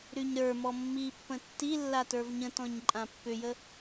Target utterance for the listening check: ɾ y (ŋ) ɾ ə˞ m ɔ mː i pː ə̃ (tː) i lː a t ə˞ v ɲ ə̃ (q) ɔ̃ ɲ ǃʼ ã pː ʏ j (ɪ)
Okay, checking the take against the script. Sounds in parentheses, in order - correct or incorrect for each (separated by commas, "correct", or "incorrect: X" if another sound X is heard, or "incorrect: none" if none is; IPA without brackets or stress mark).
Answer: incorrect: ɲ, correct, incorrect: t, incorrect: ə